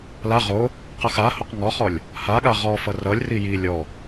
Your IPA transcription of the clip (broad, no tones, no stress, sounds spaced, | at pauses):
l a ʁ o | q ʌ x a h o q ŋ ɔ χ ɔ lʲ | h a ɠ a ʁ ɔ f ʌ r ʌ lʲ r i j i lʲ ɔ